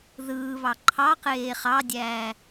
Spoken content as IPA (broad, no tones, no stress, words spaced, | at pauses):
ðɯːβɑ ǃʰɑqeː χɑdʲæː